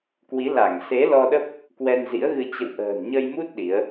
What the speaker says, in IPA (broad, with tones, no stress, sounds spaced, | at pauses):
k w i˨˦ l a˧˩ ŋ s e˨˦ l ɔ˧ ɗ ə˦˥ p̚ | k w ɛ˧ n z ḭ˧˥ ə̯ ɣ ɨ˧ t͡ɕ ə̰˧˨ w ʔ ə̤ː˨˩ n ɲ ə˧ j m u˦˥ t̚ ɗ i˨˦ ə̯